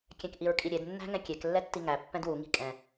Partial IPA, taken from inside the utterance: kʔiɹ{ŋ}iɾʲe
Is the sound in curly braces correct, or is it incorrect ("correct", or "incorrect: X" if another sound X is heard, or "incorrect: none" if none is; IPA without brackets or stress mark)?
incorrect: kʼ